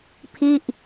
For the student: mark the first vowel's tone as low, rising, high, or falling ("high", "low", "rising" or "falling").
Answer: falling